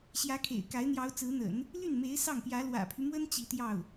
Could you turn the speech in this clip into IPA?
ɕjä˧˥kʰḛ˨˩ɪ̯ka˧˥ɪ̯ n̪jɑ˧˥ʊ̯t͡sɹ̩˧˥n̪ə̰˨˩˦n | ly˥˩nme˧˥ɪ̯ sɑ˥˩ŋpjä˧˥ lwä̰˨˩pʰy˦mwə˥n t͡ɕi˧˥t̪jɑ˥˩ʊ̯

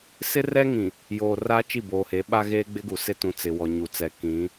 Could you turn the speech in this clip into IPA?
sɪ˦rɛ˦ŋĩ˨ | joː˨ raː˦t͡ʃi˦˨boː˨he˨˦ ɓa˦ɣeː˦ɡ͡bɪ˦ɡu˨ sɪ˦tũ˨ t͡sɪ˨wɔ˨ ɲu˨t͡sɛ˨kĩ˨˦

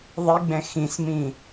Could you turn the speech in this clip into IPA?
ðˤiɡ͡bɛ̃ xĩsmĩ

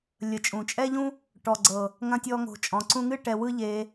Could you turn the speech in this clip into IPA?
lʲə˨t͡ʃʼũ˨t͡ʃʼɛ˦ʎũ˦ | ʈɔ˨ɡ͡ǀɤ˨ | ŋɐ̃˦tʲɔ˦ŋo̤˧t͡ʃʼɔ̃˧ ǀũ˧ŋɨ˦ ʈɛ˧wɯ˦ʎe˧

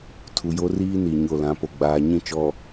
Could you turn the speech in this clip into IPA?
tʰu˨jo˦riː˦ ni˨ɲo˦˨ lã˨˦po˨ ɡ͡baː˨ɲĩ˦˨ t͡ʃɔ˨

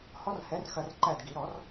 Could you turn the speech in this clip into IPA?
hɔ˦˥rhɛ˨˥rxɐ˧r ǃæ˥˩dɡi˨˩˦ ɾɔ˨˩˦r

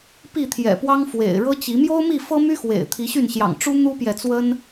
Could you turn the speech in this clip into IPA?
pi˥˨t̪ʰjɛ̰˨˩pwɑ˦ŋ fwḛ˨˩ɪ̯ ɻɤ˦t͡ɕi˨˦ mjo˦ʊ̯mi˥˨fɤ˦my˦ xwḛ˨˩ɪ̯ t̪ʰi˨˦ɕy˥˨nɕjɑ̰˨˩ŋ ʈ͡ʂu˦ n̪u˦pjɛ˨t͡swə˦n

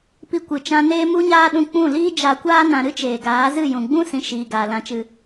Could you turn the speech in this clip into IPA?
pi˧kʷɨ˨t͡ʃã˧neː˦ mu˦ɲaː˦ɗũ˧ k͡pũ˦˨ liː˦d͡ʒa˧kʷaː˦ nã˧ ɾɨ˦t͡ʃeː˨ɡaː˨˦zɨ˦˨ jũ˨ɡ͡bũ˦ sĩ˧ ʃiː˧ɡaː˧ lã˧t͡ʃɨ˧

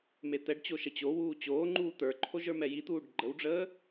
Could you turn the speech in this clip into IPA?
met̪ɛɖt͡ɕo ʃət͡ɕowuː t͡ɕoːŋ͡ǃuː t̪ə˞ǃʰoʒ ə˞mɛjit̪uːɖ ɡ͡ǃəwɖ͡ʐəː

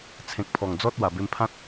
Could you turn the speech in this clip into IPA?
t͡sʰẽ˨k̚pʰɔ˨˩ŋ d͡zɔ˦t̚ wa˨˩be˧mpʰã˦t̚

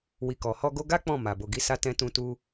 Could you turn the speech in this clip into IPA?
wi˨kɔ˨hɔ˧ ɡo˧ɡa˦ k͡pɔ̃˦˨ma˨bo˨ ɡi˨˦sa˧ tɛ̃˧tũ˧tu˧

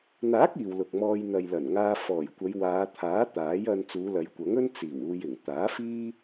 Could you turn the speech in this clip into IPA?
n̪aː˨˥k̚ iː˨wlʊ˨k̚mɔː˧j n̪ɐ˨j lɐ˨˩nŋaː˧ fɔː˨˩jkʷɐ˨˧jwaː˨˧ t̪ʰaː˨˥ t̪aː˨˥jɐ˧n t͡suː˨˧lɐ˨˧jkʷɐ˨˥ŋɵ˥n t͡siː˨˩w uː˧jɪ˨˩ŋ t̪aː˨˥fiː˥

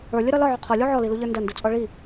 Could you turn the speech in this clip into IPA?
ə˞lʲəɾɒ lɒʕu qʰɔlʲu ʕɔliluʎə˞ ndɐndut͡sʼɔ ɭi

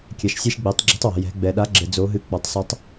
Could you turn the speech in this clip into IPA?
kʲɛ˩ʃsʲe˧ʃɡ͡be˩˧tˤ ɡ͡ǁi̤˩˥tˤwɛ̤˩ jɛ̤˩˧ɡ͡bɛ˩ ɗa˩˥ɡ͡ǁɘ˩ d͡zo˩˧ɦɨ˩˥ k͡pɔ˩tˤsa˧˥tˤ

